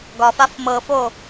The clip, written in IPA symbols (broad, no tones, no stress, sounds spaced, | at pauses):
ɡ ɒ f a f m ɤ f o